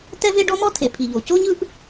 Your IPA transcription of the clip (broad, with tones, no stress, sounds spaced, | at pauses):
t ɛ˥ v e˥ ɖ ɔ˥ m ɔ˥ tʰ e˩ pʰ i˩ ʎ o˩ c o˥ ɲ ɯ˥ ʔ